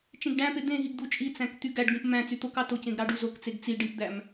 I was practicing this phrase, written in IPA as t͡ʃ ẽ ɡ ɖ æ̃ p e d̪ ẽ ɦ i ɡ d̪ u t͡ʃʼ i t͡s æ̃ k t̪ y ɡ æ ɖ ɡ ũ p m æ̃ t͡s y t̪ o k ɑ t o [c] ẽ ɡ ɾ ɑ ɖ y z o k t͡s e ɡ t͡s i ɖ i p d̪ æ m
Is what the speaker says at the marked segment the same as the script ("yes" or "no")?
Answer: yes